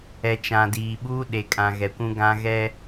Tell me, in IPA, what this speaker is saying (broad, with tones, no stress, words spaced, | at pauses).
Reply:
ɛ˨t͡ʃã˨diː˨ɓuː˦ ɗe˨kʼã˨ ɣɛ˨kʷũ˦ ɡã˦ɣɛ˦